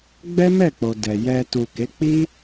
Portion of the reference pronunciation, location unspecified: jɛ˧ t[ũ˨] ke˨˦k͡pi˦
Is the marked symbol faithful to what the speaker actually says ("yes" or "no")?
no